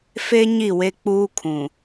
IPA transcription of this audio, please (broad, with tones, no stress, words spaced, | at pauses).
fe˦ ɲi˦˨we˦k͡puː˦kʰũ˨